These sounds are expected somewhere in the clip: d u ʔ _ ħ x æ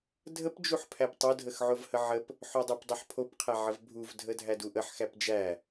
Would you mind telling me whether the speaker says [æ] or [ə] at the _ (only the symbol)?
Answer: ə